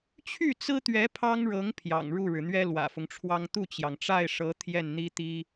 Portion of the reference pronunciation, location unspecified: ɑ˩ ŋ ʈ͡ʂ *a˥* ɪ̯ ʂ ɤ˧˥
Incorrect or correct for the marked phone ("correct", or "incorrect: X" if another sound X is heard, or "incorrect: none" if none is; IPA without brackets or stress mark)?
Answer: incorrect: a˥˩